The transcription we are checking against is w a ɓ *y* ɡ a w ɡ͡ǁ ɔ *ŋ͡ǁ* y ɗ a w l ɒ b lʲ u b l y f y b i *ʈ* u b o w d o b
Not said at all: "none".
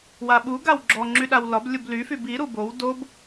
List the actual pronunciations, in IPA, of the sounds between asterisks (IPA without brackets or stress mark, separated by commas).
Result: u, ŋ͡ǁ, ɾ